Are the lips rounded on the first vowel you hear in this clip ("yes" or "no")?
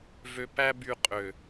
yes